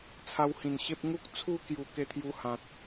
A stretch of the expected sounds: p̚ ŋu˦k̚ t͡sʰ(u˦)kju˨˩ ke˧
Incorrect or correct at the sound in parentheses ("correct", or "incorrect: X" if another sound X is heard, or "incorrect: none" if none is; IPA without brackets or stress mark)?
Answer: correct